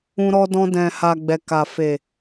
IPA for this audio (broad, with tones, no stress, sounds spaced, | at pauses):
ũ˧ ɾ ɔ˧ d ɔ̃˧ d ɛ̃˨ h a˨ ɡ͡b ɛ˨ k a˨ f e˨